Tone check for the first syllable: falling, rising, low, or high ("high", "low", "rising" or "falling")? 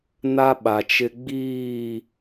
high